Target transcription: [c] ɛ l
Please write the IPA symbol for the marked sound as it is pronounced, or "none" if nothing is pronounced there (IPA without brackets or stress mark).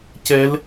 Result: c